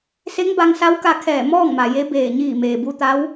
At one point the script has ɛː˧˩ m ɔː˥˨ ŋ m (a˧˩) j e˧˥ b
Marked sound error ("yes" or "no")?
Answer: yes